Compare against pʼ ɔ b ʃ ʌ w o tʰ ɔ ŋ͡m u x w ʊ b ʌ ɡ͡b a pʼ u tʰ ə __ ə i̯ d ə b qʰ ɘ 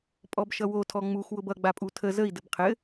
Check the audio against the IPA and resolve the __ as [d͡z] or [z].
z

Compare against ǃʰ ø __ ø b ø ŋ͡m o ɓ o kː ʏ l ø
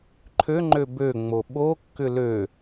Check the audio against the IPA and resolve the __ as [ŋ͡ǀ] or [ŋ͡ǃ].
ŋ͡ǃ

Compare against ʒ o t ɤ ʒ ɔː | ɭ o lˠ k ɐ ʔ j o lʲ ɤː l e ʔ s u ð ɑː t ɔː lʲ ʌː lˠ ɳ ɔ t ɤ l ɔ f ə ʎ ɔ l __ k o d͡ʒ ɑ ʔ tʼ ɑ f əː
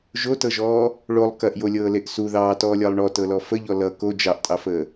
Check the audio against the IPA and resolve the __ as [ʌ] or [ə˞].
ʌ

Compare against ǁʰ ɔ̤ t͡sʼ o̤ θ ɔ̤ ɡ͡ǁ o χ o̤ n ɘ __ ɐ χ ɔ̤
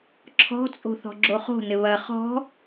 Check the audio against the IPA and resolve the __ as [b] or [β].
β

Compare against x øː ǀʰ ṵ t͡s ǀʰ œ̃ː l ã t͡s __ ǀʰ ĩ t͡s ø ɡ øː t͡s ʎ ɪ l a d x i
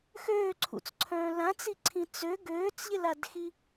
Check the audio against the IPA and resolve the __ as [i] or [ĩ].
i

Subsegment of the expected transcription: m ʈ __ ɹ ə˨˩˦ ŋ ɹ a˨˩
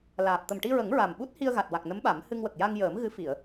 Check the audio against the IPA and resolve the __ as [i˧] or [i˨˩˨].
i˧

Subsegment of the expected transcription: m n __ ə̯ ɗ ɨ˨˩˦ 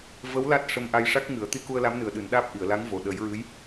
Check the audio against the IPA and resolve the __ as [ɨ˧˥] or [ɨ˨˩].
ɨ˨˩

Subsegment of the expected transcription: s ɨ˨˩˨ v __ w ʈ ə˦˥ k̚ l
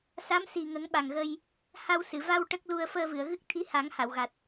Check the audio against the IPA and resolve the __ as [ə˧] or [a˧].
a˧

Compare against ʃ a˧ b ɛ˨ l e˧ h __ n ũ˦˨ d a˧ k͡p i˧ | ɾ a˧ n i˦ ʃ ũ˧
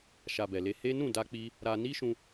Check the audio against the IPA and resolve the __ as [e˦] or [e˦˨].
e˦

